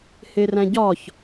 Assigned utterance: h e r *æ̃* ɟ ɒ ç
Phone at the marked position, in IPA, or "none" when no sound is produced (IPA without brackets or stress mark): æ̃